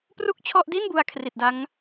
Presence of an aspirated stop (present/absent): present